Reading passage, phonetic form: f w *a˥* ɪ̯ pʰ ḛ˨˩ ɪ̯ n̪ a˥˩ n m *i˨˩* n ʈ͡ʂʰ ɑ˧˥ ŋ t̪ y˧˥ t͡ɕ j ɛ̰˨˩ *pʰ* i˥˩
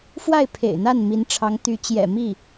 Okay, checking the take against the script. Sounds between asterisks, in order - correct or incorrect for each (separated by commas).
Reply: incorrect, incorrect, incorrect